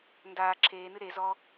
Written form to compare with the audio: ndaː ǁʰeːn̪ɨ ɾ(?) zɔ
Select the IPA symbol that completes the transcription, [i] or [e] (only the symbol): e